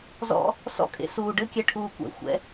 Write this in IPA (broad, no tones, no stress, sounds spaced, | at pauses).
z ɔ̰ | s ɔ̰ kʼ ḛ s uː ɖ ɘ kʲ ɛ ʈʰ uː kʷ ɛ̰ xʷ ɛ̰